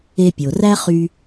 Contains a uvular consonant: yes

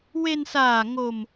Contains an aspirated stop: no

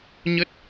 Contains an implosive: no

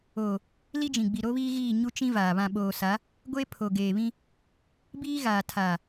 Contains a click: no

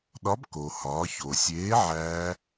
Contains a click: no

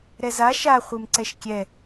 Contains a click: yes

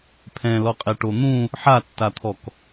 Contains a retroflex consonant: yes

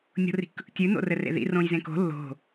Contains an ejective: no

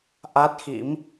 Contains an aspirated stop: no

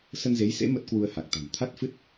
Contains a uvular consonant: no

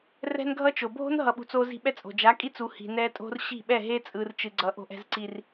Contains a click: yes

